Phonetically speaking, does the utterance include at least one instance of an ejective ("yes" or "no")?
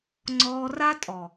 yes